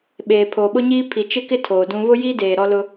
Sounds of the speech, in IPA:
ɓ eː˨ pʰ oː˨ ɓ ʊ˦ ɲ iː˦ pʰ i˨ t͡ʃ ɪ˦ k ɪ˦ tʰ oː˨ d ũ˦ β ʊ˦ j iː˦ d eː˨ ɾ ɔ˦ l ʊ˦

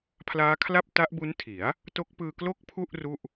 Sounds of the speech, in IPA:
pʰ l aː˦˥ kʰ l a˥˩ p̚ t a˦˥ ʔ b u˦˥ n tʰ i˩˦ a̯ | t o˦˥ k̚ p ɯː˧ k l o˥˩ k̚ pʰ u˥˩ ʔ r u˥˩ ʔ

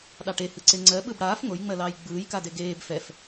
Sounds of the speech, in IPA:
ɗ ɑ ʈ e h ɯ ǀ e ŋ͡ǀ ɜ ɓ ɯ b ɽ aː f ŋ o j ŋ͡m ɜ l ɑː j ɡ͡b ɯː j k a d e ɡ eː b f ɛ f

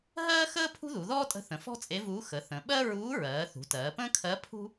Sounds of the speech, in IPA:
ɦ ɜː˥ x əː˥ pʰ ṳ˥ ð u˩˧ ð ɔː˥ tʼ ə̤˧˥ θ ə̃˩˧ f ɔ̤˥ t͡sʼ e˧˥ v uː˧˥ x ə˩˧ θ ə̃˩˧ ɓ ɜ˥ ɹ uː˧˥ ɹ ɜː˩˧ θ ṳ˩˧ t ɜː˩˧ p ə̃ː˥ kʰ ɜ˧˥ pʰ ṳ˥

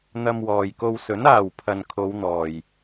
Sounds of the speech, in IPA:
n̪ ɐ˧ m w ɔː˨ j k o˧ w s ɵ˨˥ n aː˨ w pʰ ɐ˨ n kʰ o˨˧ w n̪ ɔː˨ j

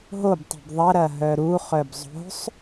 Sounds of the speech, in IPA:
ɦ o b tˤ ṳ b ðˤ ɐ ɾ ɐ ɦ œ ɾ u χ œ b zˤ o̤ sˤ

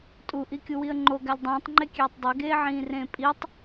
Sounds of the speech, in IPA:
tʼ u ʔ i kʲ u w i ə̯ ŋ͡ǃ o ɡ æ lʲ dˤ ĩː tˤ ŋ͡ǃ e kʲ eː tˤ dˤ e ɡ eː ʕ ĩː r ẽː pʼ i tˤ

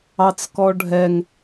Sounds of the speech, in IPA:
ɑ t͡s k ɔ ɖʱ ɛ ŋ

